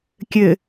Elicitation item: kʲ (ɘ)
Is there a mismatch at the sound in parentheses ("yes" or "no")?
no